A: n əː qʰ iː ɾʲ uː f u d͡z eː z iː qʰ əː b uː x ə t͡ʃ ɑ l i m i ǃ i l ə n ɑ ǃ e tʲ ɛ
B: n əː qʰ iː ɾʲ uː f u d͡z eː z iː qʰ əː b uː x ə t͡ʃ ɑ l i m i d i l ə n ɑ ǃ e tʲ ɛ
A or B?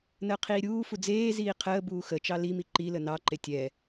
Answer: A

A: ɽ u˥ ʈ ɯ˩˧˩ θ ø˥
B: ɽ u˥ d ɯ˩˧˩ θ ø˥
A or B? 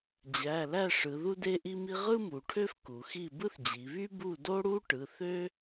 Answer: A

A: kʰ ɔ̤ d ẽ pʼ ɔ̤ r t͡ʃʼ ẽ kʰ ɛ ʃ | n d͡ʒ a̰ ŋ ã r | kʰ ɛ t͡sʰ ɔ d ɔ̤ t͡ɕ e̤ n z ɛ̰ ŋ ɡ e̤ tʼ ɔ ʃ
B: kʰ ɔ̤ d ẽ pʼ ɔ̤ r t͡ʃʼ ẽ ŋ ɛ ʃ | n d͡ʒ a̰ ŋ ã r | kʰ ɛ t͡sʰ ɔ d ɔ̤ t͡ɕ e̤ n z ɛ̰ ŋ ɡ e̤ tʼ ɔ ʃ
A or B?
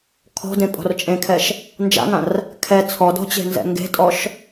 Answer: A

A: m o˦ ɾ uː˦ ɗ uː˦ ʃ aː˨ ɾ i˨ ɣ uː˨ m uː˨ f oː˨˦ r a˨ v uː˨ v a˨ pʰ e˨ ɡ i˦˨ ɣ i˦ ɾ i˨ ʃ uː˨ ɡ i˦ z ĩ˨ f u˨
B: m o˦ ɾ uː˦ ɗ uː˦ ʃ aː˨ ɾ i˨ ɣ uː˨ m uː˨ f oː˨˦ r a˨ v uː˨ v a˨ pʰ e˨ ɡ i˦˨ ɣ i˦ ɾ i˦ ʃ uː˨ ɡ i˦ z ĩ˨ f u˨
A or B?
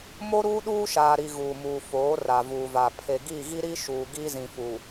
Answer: B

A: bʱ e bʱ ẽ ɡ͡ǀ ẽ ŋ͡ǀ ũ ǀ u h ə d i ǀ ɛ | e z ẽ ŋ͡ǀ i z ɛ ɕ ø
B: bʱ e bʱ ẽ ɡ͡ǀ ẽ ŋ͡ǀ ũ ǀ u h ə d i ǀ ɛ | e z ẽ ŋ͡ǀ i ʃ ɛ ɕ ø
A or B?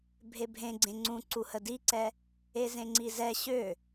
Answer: A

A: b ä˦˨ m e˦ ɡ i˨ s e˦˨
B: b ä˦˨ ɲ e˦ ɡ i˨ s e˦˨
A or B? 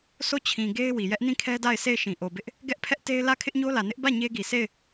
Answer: B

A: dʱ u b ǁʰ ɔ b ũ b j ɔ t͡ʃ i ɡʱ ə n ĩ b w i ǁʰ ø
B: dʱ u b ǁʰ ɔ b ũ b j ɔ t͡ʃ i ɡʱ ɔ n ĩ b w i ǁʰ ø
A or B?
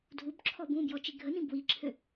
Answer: A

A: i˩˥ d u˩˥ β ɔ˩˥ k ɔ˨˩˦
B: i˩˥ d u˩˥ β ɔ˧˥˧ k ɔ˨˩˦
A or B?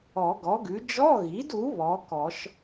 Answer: A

